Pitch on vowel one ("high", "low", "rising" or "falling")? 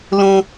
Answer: low